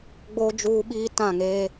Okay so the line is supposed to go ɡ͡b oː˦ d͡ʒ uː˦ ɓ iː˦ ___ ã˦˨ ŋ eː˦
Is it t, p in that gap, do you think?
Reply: t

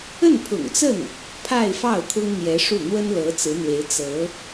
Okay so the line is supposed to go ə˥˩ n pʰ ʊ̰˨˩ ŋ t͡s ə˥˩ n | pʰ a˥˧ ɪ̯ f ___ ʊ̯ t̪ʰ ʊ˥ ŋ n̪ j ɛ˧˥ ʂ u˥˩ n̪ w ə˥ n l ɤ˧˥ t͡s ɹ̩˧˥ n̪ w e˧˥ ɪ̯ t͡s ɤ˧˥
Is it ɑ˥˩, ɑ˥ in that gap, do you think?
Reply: ɑ˥˩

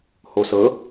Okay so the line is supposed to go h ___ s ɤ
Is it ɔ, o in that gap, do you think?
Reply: o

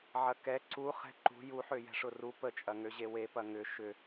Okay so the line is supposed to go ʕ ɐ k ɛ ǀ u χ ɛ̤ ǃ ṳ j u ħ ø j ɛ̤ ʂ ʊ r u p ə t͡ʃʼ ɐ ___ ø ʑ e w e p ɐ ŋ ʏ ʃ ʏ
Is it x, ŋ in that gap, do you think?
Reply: ŋ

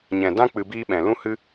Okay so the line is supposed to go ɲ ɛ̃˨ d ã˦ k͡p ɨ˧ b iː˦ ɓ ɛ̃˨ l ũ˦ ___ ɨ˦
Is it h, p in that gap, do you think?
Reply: h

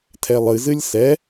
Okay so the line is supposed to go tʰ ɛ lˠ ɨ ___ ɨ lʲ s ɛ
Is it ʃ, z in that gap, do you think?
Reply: z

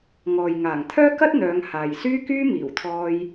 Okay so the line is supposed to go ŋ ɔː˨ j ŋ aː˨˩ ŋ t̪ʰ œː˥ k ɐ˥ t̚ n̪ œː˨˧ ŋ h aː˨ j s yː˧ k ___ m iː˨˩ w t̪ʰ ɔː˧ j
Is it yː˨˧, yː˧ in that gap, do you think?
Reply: yː˧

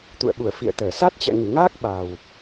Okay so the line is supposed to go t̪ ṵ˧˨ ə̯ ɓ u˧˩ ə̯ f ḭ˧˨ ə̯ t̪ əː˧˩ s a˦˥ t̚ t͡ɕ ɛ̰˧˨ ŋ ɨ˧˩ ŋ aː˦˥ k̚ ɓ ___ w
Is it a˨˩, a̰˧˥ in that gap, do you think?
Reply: a˨˩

